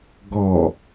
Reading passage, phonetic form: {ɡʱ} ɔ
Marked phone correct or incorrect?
incorrect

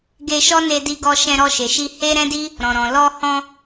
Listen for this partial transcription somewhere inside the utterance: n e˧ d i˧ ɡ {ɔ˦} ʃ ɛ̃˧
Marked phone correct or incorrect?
incorrect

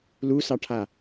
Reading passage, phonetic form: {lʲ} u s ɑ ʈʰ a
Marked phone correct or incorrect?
incorrect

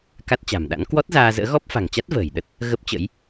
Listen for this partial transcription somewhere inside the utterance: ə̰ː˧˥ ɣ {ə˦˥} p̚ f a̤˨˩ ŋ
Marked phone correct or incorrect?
incorrect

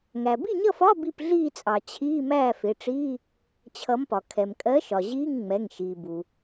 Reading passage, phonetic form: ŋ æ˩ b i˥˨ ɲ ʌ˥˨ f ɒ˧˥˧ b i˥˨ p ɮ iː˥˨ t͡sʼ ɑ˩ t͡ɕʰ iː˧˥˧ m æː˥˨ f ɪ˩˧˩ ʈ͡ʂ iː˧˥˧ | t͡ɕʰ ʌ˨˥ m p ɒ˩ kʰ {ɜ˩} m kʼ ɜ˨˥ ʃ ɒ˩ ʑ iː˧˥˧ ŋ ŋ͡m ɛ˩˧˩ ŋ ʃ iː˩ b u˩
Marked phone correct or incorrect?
incorrect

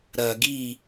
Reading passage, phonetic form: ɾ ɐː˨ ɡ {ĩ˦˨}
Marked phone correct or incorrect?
incorrect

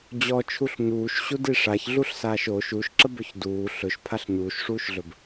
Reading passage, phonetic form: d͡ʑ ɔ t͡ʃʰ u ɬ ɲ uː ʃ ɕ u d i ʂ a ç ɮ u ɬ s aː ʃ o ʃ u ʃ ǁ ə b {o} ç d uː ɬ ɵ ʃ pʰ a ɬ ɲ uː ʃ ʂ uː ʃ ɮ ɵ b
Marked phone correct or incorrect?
incorrect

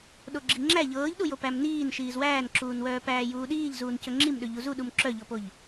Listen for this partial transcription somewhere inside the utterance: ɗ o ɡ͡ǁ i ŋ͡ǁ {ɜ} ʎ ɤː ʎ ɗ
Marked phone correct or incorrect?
incorrect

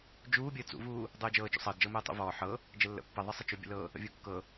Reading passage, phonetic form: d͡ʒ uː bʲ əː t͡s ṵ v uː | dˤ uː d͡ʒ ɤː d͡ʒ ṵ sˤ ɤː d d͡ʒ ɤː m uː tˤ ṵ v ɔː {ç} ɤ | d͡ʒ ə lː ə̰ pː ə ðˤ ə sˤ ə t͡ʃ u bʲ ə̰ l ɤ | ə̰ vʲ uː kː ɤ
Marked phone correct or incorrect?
incorrect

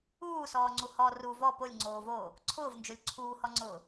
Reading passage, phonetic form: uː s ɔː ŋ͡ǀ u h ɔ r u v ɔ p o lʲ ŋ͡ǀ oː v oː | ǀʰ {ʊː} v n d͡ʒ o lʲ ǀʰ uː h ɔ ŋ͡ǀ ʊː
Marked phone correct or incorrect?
correct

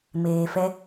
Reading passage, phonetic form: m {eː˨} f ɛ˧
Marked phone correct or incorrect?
correct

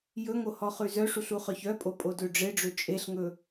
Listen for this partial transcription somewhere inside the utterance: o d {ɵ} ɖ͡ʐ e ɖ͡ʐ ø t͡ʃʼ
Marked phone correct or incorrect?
incorrect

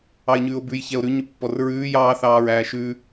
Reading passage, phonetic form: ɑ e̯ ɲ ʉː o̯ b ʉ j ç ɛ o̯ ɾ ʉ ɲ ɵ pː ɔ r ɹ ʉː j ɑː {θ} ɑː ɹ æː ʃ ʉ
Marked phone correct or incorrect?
correct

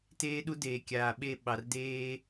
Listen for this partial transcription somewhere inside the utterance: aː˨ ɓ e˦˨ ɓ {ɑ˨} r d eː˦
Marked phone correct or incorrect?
correct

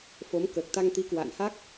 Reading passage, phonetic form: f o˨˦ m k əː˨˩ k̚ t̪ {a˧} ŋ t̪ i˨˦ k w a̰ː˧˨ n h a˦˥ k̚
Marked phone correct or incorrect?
correct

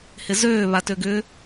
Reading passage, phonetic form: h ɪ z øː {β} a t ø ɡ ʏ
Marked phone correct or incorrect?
correct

